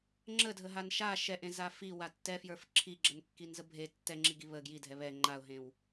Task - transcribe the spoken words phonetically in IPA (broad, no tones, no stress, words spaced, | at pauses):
ŋ͡ǁədʱəɦan ʃa ʃɛʔẽza fiwa tːɛfjə˞f ǁʰiɡ͡ǁənkːinzə bʱe tːɛŋ͡ǁiɡi βə ɡjidʱɛ βɛ ŋ͡ǃaʊ̯ɦẽw